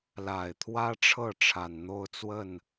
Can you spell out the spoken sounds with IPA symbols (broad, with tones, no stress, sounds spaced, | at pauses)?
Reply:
l a˨˩ ɪ̯ t̪ʰ w ä˥ ʈ͡ʂʰ ɤ˥˩ ʈ͡ʂʰ a˨˩ n n̪ o˥˧ ʊ̯ t͡s w ə˥˩ n